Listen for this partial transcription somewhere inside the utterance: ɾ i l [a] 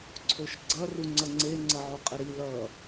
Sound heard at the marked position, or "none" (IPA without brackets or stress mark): ʌ